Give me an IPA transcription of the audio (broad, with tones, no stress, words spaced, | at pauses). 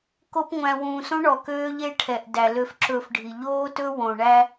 ko˦pŋʷæ̃˧ wũː˨sõ˦ ɳɔ˨ køː˦ʎe˦ ʈʰɛ˨ʔ dæ˨ lø˧fǁɵː˧fɖʱi˨ ʎoː˦tɵ˦ wõ˨ɳæ˦